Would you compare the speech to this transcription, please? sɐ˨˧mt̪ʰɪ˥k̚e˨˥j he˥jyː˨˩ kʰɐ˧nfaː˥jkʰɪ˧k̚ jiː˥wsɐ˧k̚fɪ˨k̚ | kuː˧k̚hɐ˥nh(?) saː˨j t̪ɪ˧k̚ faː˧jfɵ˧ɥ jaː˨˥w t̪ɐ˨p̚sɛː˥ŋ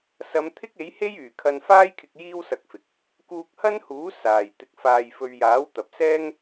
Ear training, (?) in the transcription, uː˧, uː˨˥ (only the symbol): uː˨˥